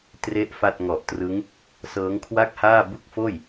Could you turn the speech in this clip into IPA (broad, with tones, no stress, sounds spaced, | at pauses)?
t r e˥˩ ʔ f a˥˩ t̚ ŋ ɔ˨˩ ʔ t r ɯ˦˥ ŋ | s ɤː˦˥ ŋ kʰ w a˥˩ k̚ h aː˥˩ b u˥˩ k̚ f oː˥˩ j